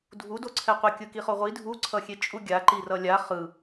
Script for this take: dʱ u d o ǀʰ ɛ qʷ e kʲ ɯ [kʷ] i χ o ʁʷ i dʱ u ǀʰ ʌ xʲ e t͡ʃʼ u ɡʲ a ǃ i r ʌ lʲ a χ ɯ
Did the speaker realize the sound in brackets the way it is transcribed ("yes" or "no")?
no